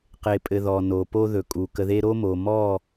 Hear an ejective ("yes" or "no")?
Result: yes